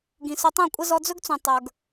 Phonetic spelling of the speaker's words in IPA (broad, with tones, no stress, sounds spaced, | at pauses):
ɡ ĩ˨ s ɵ˧ tˤ ũ˦˨ kʷʼ ə˦ z ɔ˧ d͡z ɵ˦ ɡ t͡s ũ˨ tˤ ə˞˨ ɡ